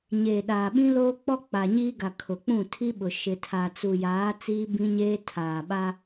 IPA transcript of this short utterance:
ɲeː˨ɗaː˨ ɓĩ˦loː˦k͡pɔ˦ k͡pa˨ɲiː˦ɡa˨ kʰʊ˨k͡pũ˦˨tʰi˦ɓʊ˨ ʃɪ˨tʰa˨t͡su˨jaː˨˦ t͡siː˦bĩ˦ɲeː˦ tʰaː˨ɓa˦

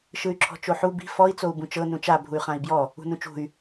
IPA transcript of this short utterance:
ʃɯy̯ǁʰɔ̤t͡ʃoħu bi̤ fɔi̯ t͡sou̯bũt͡ʃɤ nũt͡ʃa bʱuy̯χãi̯bjɔ | ṳnũt͡ʃṳy̯

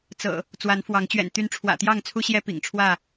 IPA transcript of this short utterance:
t͡sɤ̰˨˩ | t͡swa˨˦nfwɑ˨˦ŋ t͡ɕɥɛ̰˨˩nt̪y˨˦nʈ͡ʂʰwä̰˨˩ t̪jɑ˥˨ŋt͡sʰu˦ɕjɛ˦ pḭ˨˩ŋʈ͡ʂʰwä˥˨

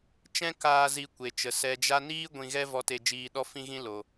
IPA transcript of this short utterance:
t͡ʃɛ̃˦ kaː˧ zi˧kʷe˨t͡ʃə˨ sɛ˨d͡ʒa˧niː˦ ɡʷĩ˧ɣɛ˦ vɔ˧te˧d͡ʒiː˧ɗɔ˦ fĩ˦ɣĩ˦lo˨

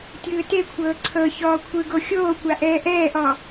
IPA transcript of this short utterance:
tʲɯːtekʷʰɤː ǀʰɤ çɔːkʷʰɯɡo xʲoːkʷa ʔɛːʔɛːʔɔ

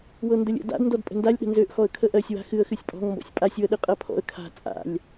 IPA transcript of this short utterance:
wɤndəlʲə̰ da̰d ndɔdpʼə̤ndalʲ ɗə̤nzøʔ xɔə̯kʰəʔɜsʲ wa̤xɨə̯ xɨsʲpʼɔ̤ŋ mbɔ̰sʲpʼasʲ wəɗɨqʼɜpʰɔ̰ə̯ kʰa̤ t͡sʼa̰lʲ

